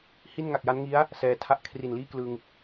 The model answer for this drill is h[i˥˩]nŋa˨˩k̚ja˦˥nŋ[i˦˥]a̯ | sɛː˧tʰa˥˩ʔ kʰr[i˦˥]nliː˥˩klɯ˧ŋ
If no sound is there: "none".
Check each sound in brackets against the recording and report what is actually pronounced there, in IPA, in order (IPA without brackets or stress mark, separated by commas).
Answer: i˥˩, i˦˥, i˨˩